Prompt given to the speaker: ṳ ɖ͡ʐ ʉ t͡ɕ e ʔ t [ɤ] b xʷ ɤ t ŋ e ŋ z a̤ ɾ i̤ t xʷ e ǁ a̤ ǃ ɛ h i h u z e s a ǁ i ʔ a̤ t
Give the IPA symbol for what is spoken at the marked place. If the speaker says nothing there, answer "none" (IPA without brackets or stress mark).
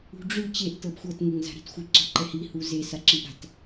ɤ